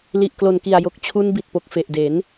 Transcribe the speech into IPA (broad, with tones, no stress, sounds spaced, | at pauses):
l i˨˩ ʔ k l o˨˩ n k i˨˩ a̯ j o˨˩ k̚ t͡ɕʰ u˧ n b i˨˩ t̚ p o˨˩ k̚ f e˨˩ ʔ d e˩˦ n